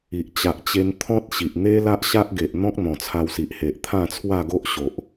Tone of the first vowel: low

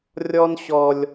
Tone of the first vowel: high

